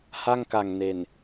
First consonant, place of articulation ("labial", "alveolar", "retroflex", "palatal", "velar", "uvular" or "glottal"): glottal